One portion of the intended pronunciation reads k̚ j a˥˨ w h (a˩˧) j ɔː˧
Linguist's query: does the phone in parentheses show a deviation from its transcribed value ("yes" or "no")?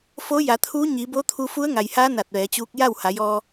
no